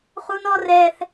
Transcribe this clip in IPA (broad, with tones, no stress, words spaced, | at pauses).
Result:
χu˦nɔ˦rɛ˦θ